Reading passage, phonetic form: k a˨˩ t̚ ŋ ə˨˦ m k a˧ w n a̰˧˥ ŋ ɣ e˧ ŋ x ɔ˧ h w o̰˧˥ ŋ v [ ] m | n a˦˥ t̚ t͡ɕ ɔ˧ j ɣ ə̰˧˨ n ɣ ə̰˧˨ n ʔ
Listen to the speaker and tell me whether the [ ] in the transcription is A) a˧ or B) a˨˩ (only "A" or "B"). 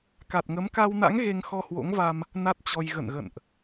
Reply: A